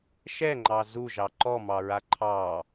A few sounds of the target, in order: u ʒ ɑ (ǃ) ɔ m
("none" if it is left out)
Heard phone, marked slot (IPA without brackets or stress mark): ǃ